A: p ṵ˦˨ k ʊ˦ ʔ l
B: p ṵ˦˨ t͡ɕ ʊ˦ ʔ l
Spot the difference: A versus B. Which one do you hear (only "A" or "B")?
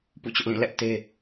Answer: B